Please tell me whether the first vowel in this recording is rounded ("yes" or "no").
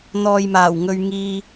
yes